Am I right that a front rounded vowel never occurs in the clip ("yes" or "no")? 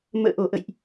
yes